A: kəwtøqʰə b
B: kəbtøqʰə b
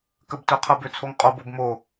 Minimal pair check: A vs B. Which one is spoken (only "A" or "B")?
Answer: B